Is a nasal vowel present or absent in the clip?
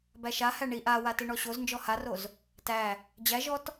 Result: absent